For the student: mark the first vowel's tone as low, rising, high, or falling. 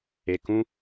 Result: low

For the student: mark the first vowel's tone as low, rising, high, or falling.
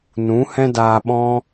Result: rising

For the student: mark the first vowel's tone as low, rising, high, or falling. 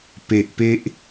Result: low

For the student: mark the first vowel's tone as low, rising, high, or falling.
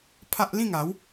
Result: high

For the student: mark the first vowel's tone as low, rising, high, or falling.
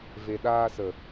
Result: low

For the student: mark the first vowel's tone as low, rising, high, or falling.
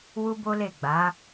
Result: high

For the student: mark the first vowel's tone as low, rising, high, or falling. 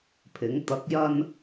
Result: rising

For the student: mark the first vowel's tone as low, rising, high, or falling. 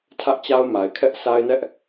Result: high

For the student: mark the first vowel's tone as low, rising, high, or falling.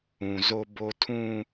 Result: low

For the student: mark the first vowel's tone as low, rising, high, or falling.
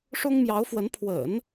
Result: high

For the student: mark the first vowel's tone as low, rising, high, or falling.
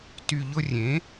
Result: low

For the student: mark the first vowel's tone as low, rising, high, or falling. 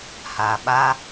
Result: low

